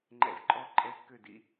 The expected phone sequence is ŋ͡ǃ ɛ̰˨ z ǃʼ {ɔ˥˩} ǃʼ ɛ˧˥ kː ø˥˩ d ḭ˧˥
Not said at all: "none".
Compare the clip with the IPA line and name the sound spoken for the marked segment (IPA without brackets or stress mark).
ɔ˥˩